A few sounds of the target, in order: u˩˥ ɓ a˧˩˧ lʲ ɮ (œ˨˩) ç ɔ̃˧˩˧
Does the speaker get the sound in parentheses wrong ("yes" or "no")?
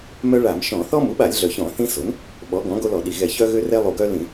no